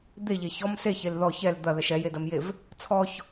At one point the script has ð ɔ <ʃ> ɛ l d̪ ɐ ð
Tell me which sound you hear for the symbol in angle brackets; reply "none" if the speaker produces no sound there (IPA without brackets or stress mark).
ç